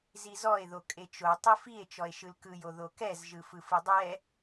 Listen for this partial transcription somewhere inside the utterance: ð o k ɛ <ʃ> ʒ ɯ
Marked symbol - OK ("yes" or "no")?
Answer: no